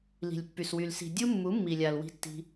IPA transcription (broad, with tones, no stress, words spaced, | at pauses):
li̤˨lʲpːy˨swy˨l si̤˨ dʲu˦ mːu˨˦mːi˨lʲa˨l wi̤˦tːi̤˦